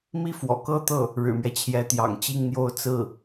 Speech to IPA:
m i˥ f w ɔ̰˨˩ k ɤ˥ t̪ ɤ˥˩ | ɻ ɻ̩˨˩ m ɥ ɛ˦ t͡ɕʰ j ɛ˧˥ t̪ j ɑ̰˨˩ ŋ t͡ɕ i˥˩ ŋ n̪ j o˥ ʊ̯ t͡s ɹ̩˥˩

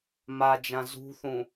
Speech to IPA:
m a d͡ʒ ã z ṳ θ ũ

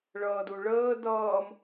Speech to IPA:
ɭ ʌː d u ɭ əː d ʌː m

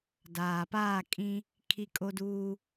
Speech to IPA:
d aː˨ p aː˦˨ kʼ ĩ˦ | kʰ i˦ kʼ o˦ d uː˦

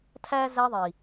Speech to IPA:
tʰ æ˦ z æ˧ ðˤ i˨

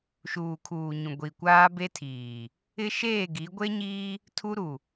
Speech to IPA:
ʃ uː˨ kʰ uː˨ ɲ ũ˨ ɡʷ i˨ kʷ aː˦ b e˦ tʰ iː˨ | ɪ˦ ʃ eː˦˨ ɡ i˨˦ ɡʷ e˦ ɲ iː˦ | tʰ u˦ ɾ u˨

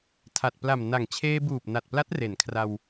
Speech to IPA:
tʰ a˨˩ t̚ p l a˨˩ m n a˨˩ ŋ t͡ɕʰ eː˧ b uː˨˩ p̚ n a˨˩ t̚ p l a˦˥ t̚ r e˩˦ n kʰ r a˧ w

